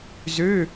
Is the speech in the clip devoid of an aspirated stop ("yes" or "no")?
yes